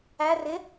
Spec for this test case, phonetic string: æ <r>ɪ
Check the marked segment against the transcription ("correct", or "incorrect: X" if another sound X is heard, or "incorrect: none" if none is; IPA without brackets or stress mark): correct